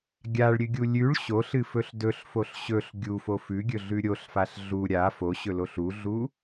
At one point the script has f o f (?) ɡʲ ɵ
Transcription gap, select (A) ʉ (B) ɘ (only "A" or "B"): A